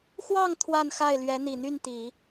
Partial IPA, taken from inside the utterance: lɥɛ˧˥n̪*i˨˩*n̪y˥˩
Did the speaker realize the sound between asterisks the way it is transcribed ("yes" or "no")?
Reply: yes